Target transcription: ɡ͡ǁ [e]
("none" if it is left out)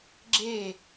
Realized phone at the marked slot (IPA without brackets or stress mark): e